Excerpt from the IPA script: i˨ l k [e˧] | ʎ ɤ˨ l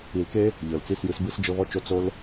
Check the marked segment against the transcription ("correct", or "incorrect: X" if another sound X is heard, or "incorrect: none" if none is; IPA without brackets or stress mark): incorrect: e˦